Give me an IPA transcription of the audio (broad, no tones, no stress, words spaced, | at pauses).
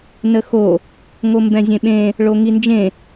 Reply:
nəxo | ŋombɛ̃zʲẽɓẽ | ɭoŋind͡ʒẽ